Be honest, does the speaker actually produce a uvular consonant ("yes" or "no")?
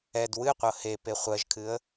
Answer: yes